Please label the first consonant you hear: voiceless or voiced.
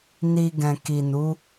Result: voiced